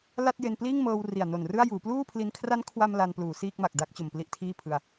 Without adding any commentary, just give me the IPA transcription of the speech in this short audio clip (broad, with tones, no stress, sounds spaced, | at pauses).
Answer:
l a˥˩ t̚ j e˧ n p l iː˥˩ ŋ m ɤː˧ w r i˨˩ a̯ n o˨˩ n r ɯ˥˩ a̯ j uː˩˦ p l uː˥˩ pʰ l i˧ n kʰ r a˦˥ n kʰ w a˧ m l a˧ n p l uː˩˦ s iː˥˩ k̚ m a˨˩ k̚ d a˦˥ k̚ t͡ɕ o˨˩ m p l i˦˥ ʔ tʰ iː˥˩ pʰ ɯ˧ a̯